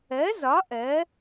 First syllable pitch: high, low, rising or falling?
rising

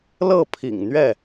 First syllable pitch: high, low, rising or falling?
falling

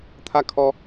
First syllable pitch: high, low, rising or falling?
falling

